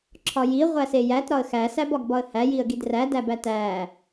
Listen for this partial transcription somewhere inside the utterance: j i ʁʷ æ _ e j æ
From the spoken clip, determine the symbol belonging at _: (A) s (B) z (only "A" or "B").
A